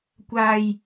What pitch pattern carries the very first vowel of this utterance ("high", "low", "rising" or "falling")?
high